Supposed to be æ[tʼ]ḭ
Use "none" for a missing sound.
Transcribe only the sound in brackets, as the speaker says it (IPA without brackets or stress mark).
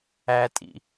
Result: tʼ